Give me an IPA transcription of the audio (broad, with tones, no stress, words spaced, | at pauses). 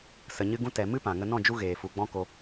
sə˨ɲɨ˧ɡũ˧ tɛ˨ mɨ˦pã˨ŋə˧ nɔ̃˦˨d͡ʒu˧ ɣeː˨fu˨ɡ͡bɔ̃˦ ko˧